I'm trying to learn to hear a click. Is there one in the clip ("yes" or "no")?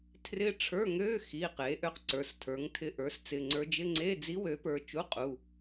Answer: yes